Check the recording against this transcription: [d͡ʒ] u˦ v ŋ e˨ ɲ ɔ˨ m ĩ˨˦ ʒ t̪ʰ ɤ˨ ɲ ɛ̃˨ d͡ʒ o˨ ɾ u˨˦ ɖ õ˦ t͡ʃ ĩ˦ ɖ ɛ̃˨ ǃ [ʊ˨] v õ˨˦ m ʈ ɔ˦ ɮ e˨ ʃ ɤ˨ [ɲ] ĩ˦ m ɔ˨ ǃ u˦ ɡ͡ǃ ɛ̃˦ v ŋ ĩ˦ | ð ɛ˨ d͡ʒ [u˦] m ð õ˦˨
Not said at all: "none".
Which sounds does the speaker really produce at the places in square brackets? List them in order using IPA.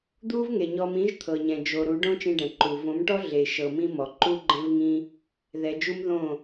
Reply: d̪, u˨, m, u˦

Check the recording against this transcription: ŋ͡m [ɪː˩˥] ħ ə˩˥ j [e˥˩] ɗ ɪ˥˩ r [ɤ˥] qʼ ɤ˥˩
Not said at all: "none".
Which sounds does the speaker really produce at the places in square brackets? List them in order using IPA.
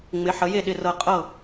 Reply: ɪ˩˥, e˥˩, ɤ˥˩

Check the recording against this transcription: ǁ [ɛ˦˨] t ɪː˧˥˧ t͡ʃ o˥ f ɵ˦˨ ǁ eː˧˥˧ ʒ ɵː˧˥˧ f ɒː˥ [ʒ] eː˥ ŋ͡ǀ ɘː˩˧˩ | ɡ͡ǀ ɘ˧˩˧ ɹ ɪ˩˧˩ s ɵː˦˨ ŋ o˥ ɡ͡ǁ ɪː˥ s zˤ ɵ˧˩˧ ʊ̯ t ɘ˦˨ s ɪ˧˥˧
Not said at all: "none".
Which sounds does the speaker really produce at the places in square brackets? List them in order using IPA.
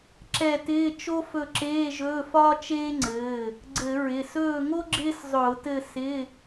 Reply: ɛ˦˨, t͡ʃ

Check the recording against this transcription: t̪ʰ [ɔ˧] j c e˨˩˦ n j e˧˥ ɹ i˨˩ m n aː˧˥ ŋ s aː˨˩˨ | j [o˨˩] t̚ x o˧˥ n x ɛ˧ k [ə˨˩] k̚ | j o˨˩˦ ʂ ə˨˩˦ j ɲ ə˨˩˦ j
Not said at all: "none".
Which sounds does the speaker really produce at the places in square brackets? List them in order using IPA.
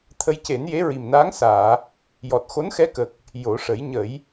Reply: ə˧, ɔ˨˩, ə˨˩

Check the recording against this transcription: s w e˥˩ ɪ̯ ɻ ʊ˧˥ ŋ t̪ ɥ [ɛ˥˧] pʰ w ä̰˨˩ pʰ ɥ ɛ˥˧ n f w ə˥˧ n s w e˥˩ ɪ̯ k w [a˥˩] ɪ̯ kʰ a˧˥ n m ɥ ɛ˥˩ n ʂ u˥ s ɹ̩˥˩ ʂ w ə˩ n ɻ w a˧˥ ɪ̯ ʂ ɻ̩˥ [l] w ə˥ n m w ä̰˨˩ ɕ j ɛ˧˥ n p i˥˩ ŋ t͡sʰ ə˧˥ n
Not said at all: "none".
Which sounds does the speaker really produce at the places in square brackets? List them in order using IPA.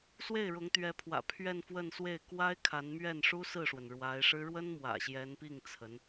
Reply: ɛ˧˥, a˥, ɻ

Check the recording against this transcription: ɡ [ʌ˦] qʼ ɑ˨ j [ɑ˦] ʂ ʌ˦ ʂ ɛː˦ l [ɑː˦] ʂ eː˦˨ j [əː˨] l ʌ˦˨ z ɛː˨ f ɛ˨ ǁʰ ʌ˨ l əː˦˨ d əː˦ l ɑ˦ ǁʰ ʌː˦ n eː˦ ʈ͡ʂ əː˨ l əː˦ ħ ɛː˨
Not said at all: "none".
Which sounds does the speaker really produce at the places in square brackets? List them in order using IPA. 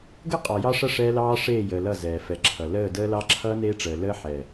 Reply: ə˦, ɑ˦, ɑː˦, əː˨

